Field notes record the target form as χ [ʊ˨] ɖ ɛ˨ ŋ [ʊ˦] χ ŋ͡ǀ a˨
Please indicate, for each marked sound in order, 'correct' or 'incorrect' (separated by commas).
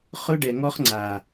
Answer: incorrect, incorrect